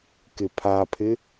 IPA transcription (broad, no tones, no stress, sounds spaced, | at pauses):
k ɪ pʰ a pʰ ɪ